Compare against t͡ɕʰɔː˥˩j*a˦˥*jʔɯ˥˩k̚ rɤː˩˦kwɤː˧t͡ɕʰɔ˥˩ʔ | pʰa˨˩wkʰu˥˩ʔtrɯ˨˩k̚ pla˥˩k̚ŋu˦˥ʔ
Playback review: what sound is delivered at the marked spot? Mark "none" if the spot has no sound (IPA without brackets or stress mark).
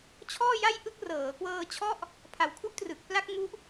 a˥˩